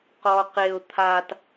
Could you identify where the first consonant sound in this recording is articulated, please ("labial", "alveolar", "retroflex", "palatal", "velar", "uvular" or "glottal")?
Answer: uvular